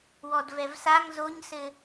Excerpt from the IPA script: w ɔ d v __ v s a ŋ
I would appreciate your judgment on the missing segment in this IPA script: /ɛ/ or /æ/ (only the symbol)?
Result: ɛ